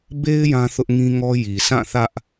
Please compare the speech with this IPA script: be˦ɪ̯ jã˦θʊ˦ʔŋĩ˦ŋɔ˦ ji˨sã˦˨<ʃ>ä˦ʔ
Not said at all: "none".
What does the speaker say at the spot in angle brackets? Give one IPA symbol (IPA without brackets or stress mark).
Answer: θ